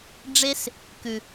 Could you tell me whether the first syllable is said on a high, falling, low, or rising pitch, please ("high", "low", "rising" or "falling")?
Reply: high